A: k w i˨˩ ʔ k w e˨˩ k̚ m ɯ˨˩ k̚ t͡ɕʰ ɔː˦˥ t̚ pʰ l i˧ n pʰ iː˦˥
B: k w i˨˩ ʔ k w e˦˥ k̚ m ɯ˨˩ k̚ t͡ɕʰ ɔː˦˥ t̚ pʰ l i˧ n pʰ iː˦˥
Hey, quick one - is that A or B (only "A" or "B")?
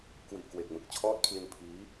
A